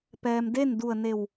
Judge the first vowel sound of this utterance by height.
mid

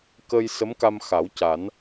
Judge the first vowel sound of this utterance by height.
mid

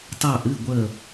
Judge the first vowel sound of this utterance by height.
low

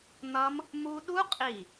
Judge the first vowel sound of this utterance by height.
mid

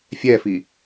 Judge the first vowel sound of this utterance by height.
mid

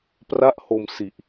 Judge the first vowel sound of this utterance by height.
low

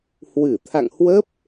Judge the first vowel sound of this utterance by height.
high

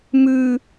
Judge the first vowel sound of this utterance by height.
high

